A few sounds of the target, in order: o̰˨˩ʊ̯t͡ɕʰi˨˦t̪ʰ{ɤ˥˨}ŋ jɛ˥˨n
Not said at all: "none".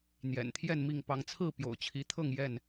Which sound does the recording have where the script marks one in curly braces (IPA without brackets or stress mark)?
ɤ˥˨